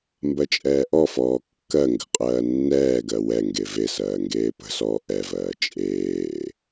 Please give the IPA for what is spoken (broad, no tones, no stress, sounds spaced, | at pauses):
m b ɜ t͡ʃʼ ɛː ʔ ɔ f ɔː kː ɜ ŋ ɡ ə̤ qʼ ɜː nː ɛː ɡ ɜ w ɛ ŋ ɡ e v e s ɜː ŋ ɡ eː p ə̤ s ɔː ʔ ɛ v ɜː t͡ʃʼ eː